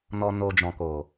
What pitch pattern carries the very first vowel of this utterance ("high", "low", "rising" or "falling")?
low